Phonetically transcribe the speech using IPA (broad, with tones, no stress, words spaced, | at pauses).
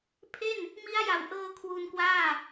pʰe˥˩n | mi˦˥a̯ja˨˩wʔɤː˧ kʰwu˧nkwaː˥˩